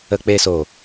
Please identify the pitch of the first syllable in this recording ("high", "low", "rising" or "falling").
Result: high